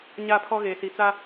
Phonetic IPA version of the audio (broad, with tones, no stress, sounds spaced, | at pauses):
ɲ a˦˨ pʰ ɔ˦ ɣ eː˨ s i˨ t͡s a˦